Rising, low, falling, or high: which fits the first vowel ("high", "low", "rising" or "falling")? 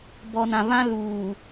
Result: low